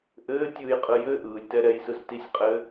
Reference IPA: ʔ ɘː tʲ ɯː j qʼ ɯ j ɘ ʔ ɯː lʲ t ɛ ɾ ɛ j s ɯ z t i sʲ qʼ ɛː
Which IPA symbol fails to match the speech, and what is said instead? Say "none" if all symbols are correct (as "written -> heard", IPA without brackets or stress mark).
ɛː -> ɘː